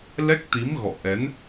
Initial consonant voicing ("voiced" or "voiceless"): voiced